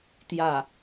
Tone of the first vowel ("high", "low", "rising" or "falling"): falling